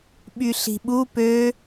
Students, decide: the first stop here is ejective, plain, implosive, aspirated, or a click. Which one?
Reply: implosive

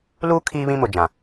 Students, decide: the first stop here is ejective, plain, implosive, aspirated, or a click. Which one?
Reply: aspirated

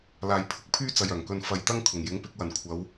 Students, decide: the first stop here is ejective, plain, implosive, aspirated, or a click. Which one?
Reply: aspirated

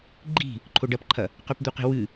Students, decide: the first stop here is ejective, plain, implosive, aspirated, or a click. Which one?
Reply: click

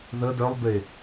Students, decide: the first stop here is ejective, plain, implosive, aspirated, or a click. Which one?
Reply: plain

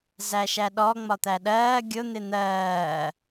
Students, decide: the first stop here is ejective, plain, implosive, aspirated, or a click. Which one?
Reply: implosive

